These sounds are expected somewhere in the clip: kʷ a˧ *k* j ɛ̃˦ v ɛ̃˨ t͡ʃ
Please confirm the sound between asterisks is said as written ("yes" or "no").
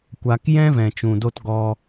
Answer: yes